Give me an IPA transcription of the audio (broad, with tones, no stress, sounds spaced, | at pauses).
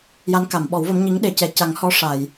j a˧˥ n k a˨˩˨ m ɓ ɔ˨˩˦ w v ə˧˥ m ɲ i˧˥ ŋ ɗ e˨˩˦ c ɛ˨˩ c a˨˩˦ ŋ h ɔ˧˥ ʂ a˨˩˨ j